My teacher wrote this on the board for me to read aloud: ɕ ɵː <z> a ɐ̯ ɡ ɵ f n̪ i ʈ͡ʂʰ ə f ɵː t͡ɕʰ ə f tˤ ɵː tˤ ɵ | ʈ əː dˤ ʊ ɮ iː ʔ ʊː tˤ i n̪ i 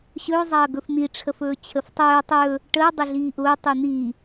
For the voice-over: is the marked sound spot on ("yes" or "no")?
no